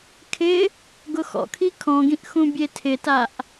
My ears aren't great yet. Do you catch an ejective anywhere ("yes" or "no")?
no